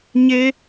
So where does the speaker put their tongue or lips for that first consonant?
palate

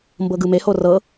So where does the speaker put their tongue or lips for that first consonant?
lips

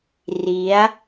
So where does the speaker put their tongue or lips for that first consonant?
tongue tip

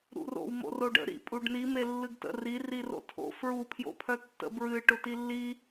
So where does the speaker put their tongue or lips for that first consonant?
tongue tip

